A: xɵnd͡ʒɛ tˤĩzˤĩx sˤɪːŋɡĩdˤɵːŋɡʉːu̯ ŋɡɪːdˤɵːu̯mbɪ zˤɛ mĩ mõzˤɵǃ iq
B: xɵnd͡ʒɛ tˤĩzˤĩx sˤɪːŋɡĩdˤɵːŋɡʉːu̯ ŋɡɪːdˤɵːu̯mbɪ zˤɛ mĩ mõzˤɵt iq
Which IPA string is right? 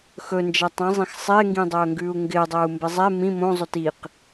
B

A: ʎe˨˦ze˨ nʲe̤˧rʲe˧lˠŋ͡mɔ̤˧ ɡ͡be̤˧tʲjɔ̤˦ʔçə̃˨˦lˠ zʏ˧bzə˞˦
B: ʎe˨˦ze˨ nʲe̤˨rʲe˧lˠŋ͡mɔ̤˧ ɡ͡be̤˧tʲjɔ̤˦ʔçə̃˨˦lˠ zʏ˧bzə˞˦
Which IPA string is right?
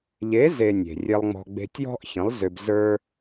B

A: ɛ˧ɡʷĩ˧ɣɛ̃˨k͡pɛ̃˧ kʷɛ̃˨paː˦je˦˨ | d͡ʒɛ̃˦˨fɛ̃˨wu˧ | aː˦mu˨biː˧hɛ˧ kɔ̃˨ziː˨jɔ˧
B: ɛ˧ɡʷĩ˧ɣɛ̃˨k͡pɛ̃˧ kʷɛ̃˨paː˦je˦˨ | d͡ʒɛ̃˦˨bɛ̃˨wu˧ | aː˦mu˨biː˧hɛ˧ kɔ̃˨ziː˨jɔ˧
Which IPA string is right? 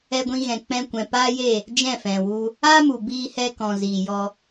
A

